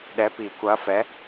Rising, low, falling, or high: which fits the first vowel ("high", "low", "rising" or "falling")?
rising